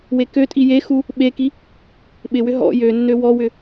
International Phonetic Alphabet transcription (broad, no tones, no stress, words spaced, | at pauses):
wekøtʼi jexu | ɓeki | ɓɪwʏ ɦɔ̰ jønːø wɔwʏ